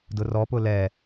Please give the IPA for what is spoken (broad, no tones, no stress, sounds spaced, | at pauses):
d ʊ r ɔ p ʊ l ɛ